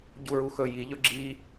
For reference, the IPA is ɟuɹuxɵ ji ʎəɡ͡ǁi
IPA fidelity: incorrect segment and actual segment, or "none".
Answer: ə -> ɵ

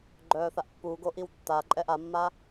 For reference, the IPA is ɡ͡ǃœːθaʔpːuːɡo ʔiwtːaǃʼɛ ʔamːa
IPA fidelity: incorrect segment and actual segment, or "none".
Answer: none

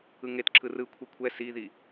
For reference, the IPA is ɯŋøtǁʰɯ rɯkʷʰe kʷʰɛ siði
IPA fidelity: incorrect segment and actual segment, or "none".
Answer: ø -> e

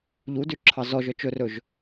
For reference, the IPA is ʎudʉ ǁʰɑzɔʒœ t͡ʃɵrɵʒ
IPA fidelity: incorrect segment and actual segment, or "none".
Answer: none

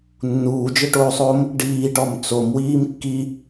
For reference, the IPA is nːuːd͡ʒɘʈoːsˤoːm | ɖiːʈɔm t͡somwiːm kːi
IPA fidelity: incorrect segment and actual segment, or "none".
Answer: none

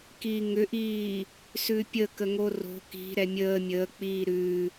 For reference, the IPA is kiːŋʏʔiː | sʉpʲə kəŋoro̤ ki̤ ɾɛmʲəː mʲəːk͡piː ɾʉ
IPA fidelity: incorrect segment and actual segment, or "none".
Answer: none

